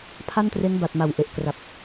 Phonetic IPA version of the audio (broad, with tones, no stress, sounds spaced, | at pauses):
pʰ a˥˩ n t r e˦˥ n b a˨˩ t̚ m a˨˩ w ʔ e˨˩ ʔ k r a˨˩ p̚